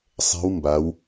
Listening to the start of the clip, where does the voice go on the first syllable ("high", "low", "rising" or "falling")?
rising